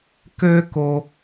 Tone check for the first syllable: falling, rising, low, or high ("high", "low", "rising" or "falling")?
high